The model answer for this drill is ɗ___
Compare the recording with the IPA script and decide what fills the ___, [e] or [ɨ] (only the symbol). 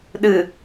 ɨ